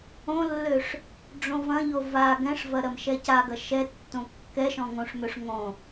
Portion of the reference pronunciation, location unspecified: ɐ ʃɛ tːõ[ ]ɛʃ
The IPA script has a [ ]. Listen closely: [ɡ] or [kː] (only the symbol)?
kː